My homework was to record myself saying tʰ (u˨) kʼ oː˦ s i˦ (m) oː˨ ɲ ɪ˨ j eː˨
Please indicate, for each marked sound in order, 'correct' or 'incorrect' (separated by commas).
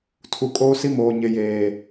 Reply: correct, correct